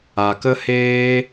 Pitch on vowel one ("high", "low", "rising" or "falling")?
low